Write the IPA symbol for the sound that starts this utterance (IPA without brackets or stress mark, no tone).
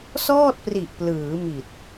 s